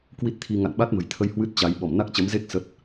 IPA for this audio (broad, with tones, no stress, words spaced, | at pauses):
kwi˦˥t̚t̪ʰi˧ ŋa̰˧˨nɓa˦˥t̚mə̤˨˩jt̪ʰə˧j hwɨ˦˥t̚t͡ɕa˨˦j ɓɔ˧˩mna˦˥k̚t͡ɕə˨˦m ze˦˥k̚ sə˦˥t̚